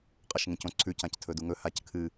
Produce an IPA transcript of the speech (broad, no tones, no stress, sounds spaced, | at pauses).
qʼ ɐ ʃ ŋ ẽ c õ ǀʰ ʉ c ã c tʰ ɵ d u ŋ ɵ h a c kʰ ɨ